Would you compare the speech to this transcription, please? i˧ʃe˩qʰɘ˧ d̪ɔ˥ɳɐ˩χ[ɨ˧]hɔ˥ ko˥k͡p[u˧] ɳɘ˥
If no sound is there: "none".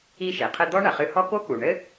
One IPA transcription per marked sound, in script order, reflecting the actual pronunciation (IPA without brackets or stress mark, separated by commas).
ɨ˧, u˩